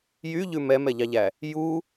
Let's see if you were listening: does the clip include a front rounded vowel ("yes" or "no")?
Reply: yes